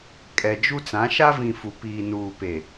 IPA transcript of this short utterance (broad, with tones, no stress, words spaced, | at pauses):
kʼɛ˨d͡ʒu˦t͡sã˨˦ ʃa˦vĩ˨ fu˨ piː˨nuː˨pe˨